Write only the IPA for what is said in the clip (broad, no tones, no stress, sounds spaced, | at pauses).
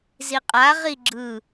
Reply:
z i qʼ a ʁ i ɡ͡ǁ ɯ